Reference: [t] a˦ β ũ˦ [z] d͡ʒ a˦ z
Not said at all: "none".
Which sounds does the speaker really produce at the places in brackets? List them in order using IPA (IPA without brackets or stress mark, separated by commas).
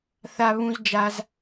θ, z